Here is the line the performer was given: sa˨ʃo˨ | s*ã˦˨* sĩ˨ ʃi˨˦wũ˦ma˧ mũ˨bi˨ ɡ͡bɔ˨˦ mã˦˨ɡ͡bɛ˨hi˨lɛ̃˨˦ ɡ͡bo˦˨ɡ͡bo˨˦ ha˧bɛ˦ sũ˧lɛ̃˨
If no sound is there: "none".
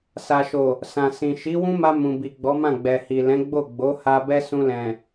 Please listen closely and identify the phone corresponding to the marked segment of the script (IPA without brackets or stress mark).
ã˨